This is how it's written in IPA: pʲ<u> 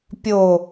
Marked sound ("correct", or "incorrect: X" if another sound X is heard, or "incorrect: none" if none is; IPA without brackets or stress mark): incorrect: o